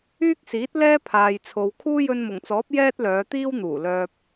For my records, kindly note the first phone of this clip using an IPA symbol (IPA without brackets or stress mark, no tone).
yː